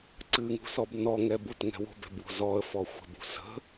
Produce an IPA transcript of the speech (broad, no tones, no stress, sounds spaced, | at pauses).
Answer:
ǀ ɨ ŋ ṳ s ɔ b n ɔ ŋ ɛ b u t ŋ ɛ̤ w o̤ b ɛ̤ b w o̤ z ɔ ə̯ f ɔ xʷ ə̤ b ṳ s ə̤